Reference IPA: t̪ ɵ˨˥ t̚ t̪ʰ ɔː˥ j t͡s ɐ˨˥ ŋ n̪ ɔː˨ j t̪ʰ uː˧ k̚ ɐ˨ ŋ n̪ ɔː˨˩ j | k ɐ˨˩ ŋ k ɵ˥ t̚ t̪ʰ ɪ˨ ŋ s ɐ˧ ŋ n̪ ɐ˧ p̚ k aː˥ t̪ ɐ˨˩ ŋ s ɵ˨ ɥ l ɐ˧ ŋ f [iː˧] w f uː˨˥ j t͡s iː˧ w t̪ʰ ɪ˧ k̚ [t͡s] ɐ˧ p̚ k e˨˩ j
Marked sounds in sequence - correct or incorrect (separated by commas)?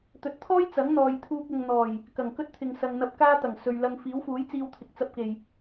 incorrect, correct